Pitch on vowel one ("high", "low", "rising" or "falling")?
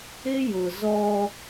high